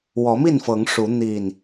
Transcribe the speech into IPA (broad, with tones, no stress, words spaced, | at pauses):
wɔ˨˦mi˥˨nfɤ˨˦ŋ ʂu˨˦ n̪i˨˩n